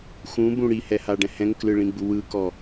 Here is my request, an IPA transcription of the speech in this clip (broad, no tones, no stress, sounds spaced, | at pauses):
x ũ b ũ ɽ i h ɛ h a ɖ ɛ̃ h ɛ̃ ŋ k l ɯ ɭ ĩ ɡ͡b u w ɯ k ɔ